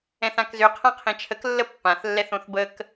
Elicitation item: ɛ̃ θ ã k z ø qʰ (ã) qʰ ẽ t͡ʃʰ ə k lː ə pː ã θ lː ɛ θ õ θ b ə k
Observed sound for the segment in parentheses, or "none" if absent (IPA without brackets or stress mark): ã